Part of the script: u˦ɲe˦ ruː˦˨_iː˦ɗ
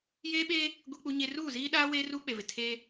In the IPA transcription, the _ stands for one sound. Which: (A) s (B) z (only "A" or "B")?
B